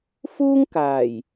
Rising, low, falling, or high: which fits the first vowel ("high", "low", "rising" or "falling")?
high